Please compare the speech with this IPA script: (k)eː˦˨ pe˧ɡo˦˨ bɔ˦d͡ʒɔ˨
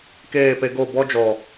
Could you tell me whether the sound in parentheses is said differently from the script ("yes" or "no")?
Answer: no